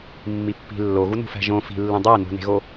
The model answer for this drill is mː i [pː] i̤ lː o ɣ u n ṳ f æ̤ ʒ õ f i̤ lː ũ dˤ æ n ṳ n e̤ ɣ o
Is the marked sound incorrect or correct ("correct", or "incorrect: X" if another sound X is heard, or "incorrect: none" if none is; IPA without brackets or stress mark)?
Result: correct